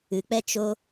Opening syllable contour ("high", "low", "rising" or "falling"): low